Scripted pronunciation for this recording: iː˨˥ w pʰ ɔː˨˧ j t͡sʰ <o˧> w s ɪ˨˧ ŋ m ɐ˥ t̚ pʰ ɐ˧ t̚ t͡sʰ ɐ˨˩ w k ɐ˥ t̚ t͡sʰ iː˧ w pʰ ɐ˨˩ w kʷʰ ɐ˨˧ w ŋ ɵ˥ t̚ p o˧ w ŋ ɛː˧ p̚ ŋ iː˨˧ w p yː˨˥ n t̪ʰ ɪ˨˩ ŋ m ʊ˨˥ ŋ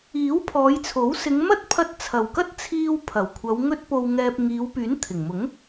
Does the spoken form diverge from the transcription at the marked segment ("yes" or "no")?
yes